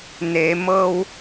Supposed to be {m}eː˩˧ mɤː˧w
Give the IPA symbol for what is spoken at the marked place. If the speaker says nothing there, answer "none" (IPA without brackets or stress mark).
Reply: n